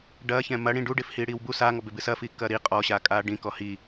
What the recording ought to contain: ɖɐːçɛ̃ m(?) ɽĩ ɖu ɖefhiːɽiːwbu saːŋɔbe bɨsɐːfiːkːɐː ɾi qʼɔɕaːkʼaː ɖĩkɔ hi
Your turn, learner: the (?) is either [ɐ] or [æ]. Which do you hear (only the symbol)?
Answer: ɐ